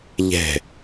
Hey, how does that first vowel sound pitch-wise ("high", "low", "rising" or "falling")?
falling